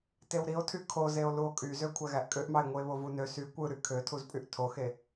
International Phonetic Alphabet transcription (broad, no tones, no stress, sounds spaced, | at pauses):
t e w ɾ i o̯ tʰ y kʰ o z e o̯ l u o̯ kʼ y z ø kʷʰ æ ɣ æ ʔ kʼ ø ʔ m ɑ e̯ ŋʷ ɯ e̯ β o v u n ø s y kʷ ɯ ɾ y kʰ ø tʰ u z pʼ y ʔ tʰ o x e